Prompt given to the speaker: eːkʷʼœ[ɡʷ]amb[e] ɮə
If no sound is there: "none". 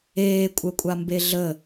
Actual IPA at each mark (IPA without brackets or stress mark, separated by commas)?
kʷʼ, e